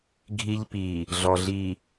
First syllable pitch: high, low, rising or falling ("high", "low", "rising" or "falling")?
high